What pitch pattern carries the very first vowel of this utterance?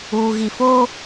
low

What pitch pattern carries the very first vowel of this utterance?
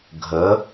rising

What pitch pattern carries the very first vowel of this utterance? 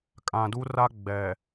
low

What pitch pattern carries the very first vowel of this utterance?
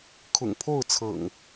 low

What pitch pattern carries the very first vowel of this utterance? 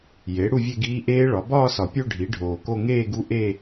rising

